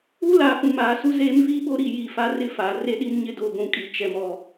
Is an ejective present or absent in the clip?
present